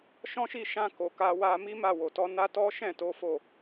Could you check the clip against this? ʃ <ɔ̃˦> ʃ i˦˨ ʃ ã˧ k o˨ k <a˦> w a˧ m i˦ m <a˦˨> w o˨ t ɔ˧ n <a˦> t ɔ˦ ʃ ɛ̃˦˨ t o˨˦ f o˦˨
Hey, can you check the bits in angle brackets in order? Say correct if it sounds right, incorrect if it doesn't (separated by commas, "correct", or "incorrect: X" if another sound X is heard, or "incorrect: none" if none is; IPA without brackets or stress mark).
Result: correct, incorrect: a˧, correct, correct